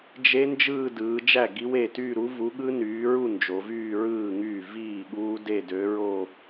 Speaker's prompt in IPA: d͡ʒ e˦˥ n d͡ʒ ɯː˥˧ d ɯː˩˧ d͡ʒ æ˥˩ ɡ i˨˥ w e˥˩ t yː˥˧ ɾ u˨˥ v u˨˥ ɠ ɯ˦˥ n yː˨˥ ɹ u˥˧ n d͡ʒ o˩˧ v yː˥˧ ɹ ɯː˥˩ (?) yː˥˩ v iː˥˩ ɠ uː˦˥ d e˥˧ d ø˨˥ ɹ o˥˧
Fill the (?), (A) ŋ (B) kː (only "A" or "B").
A